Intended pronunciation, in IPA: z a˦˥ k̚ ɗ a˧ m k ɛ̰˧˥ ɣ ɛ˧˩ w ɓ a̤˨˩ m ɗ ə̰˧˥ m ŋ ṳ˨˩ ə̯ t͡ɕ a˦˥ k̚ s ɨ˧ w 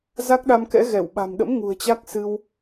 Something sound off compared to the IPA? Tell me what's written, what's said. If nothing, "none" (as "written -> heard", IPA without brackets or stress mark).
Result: none